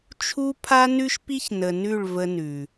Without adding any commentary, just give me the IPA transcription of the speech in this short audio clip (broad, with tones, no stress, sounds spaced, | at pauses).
t͡ʃʰ u˦ pʰ a˦ n ʉ˦ ʃ p i˦ ç n ə˨ n ʉ˦˨ ɭ v ə˦ n ʉ˨